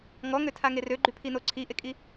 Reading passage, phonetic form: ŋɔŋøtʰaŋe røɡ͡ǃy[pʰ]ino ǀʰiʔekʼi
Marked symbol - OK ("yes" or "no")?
yes